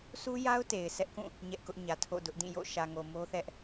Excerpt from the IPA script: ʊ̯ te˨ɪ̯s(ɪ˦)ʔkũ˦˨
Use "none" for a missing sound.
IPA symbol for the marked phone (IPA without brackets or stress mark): ɛ˦